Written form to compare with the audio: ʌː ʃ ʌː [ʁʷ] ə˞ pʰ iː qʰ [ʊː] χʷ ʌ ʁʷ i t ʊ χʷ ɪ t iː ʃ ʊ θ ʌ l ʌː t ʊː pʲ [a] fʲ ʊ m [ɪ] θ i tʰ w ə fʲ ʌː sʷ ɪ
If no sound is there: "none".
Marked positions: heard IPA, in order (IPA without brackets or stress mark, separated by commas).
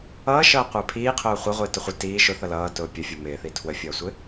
qʷ, ʊː, ə, ɪː